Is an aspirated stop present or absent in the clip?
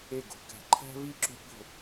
present